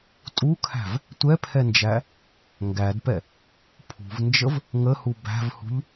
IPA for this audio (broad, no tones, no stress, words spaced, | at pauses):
tʼukʰæ̤v | tʷɛpʰɛnd͡ʒæ | ŋɡædpɛ | pʰṳvnd͡ʒəv | ŋəhu bæ̤vhṳʎ